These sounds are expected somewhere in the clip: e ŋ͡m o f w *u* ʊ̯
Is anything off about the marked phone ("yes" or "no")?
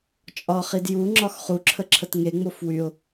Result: yes